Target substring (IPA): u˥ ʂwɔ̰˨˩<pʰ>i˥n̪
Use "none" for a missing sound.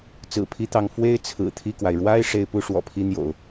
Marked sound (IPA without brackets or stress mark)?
pʰ